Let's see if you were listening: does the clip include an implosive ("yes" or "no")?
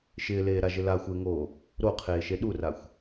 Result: yes